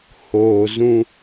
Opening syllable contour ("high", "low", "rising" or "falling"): low